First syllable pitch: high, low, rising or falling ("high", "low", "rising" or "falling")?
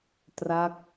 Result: falling